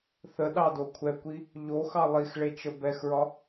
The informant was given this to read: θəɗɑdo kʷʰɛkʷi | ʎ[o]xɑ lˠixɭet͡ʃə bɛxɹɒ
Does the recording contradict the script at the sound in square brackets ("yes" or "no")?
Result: no